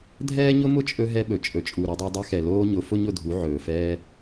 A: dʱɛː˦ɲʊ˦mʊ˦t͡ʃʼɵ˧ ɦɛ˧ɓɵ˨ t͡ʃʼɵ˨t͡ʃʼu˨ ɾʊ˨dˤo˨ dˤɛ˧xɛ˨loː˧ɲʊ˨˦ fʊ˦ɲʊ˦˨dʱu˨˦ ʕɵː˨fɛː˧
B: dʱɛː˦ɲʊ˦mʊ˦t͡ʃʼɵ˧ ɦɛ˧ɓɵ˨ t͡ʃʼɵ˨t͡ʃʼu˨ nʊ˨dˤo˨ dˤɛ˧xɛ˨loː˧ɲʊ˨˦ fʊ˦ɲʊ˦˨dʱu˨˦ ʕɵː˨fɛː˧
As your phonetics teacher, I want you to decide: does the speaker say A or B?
A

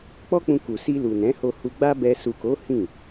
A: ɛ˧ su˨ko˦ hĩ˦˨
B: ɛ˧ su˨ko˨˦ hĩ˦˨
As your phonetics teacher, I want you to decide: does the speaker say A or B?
B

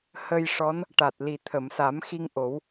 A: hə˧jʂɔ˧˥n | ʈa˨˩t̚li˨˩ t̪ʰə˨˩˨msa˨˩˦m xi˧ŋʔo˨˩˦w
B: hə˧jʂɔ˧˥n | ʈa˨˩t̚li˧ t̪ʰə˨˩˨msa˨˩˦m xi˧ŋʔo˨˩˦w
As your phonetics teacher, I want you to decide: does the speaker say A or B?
A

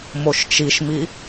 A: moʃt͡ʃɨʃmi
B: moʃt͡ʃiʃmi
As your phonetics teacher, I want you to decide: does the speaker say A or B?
B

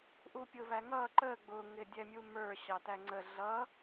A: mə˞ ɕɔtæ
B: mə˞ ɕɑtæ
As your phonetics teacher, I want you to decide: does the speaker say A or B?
B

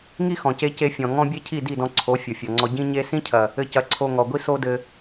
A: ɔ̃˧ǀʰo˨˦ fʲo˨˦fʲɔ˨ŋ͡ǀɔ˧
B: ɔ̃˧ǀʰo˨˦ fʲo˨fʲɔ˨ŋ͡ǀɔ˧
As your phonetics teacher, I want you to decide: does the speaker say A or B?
B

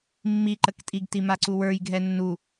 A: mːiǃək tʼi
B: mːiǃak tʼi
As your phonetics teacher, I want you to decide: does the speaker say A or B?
A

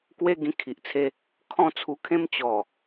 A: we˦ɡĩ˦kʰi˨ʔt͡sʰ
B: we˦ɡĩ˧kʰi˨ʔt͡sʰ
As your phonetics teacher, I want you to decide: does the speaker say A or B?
B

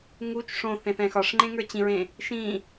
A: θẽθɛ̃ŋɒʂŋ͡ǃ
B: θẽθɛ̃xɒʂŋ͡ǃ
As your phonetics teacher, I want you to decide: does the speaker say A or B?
B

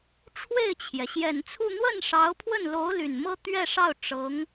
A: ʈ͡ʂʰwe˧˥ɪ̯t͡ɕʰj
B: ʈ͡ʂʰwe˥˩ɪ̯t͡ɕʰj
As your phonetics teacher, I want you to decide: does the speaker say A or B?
B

